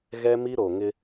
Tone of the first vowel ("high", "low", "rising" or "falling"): high